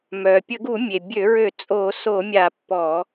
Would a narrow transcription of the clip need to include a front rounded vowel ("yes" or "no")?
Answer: yes